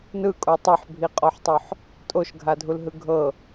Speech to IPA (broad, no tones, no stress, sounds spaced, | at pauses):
n ɯ kʼ o tˤ ɤ ħ bʱ i qʼ ɔ ħ tˤ o ħ | tʼ o ʃ ɡʱ a dʱ u l ɦ ɯ ɡʱ ɤ